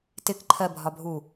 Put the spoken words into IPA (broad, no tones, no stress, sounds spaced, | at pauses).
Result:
t ɪ k ǃʰ ɜ bʱ ɒ bʱ u